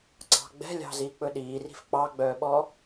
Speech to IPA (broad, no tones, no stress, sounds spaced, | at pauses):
ǀ ɑ̤ ɡ͡b ɛ̤ lʲ ɑ̤ z iː k͡p ɵ ɗ iː r i̤ f k͡p ɑ ɡ͡b œː ɓ ɔ